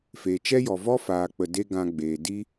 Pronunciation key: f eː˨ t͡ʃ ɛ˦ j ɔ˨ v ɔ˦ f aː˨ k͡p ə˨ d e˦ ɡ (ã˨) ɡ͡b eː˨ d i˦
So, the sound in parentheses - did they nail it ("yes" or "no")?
no